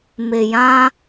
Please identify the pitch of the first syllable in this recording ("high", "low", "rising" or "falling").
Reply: low